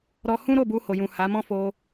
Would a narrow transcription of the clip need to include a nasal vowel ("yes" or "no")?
yes